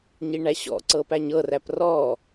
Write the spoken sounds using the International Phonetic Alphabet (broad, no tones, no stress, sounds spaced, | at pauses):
ɲ i ɳ æ ɕ ɔ̰ ǀ ɤ p æ ɲ ɤ r æ p r ɔ